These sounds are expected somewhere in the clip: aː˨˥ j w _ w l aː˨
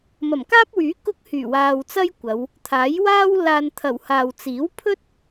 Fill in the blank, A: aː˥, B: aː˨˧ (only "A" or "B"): A